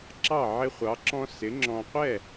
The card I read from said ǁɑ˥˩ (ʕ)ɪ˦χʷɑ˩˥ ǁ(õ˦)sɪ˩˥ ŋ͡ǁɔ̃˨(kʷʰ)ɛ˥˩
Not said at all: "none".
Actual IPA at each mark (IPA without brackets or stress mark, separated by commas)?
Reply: ʕ, ɔ̃˦, qʷ